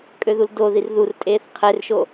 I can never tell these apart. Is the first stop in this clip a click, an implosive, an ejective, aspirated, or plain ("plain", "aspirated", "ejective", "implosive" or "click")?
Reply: ejective